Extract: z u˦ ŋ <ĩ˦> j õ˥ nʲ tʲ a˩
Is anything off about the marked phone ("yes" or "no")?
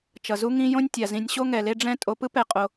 no